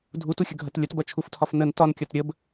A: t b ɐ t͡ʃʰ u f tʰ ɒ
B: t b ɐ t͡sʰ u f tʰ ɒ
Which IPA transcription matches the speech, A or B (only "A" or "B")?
A